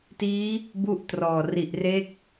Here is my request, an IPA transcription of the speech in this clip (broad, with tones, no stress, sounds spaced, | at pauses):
t iː˦˥ | b u˥˩ ʔ t r ɔː˨˩ r i˨˩ ʔ r e˦˥ k̚